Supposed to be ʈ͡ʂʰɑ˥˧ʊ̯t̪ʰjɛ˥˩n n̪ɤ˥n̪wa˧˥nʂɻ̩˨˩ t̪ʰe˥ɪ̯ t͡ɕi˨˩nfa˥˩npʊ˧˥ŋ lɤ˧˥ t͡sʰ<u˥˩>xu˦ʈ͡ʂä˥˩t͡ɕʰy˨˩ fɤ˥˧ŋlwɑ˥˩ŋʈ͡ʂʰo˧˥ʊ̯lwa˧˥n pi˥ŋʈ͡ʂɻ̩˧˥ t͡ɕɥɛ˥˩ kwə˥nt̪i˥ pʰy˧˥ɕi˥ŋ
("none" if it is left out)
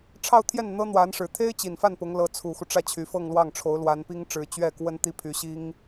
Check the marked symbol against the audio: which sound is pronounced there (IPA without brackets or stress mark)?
u˨˩